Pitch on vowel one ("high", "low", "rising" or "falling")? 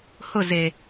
falling